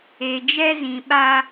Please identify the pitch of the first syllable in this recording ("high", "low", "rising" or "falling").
low